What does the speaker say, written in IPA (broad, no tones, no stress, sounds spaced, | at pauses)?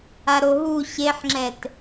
a ɾ o ɦ u ɕ e ħ ŋ͡ǁ ɛ t